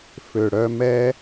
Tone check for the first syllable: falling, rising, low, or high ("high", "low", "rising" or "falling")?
low